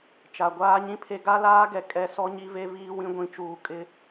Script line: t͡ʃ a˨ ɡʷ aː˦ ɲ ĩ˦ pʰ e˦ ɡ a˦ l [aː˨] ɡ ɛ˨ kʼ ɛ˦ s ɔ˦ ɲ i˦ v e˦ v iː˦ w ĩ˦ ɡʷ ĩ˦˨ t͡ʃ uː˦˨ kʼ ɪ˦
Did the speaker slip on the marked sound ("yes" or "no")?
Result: yes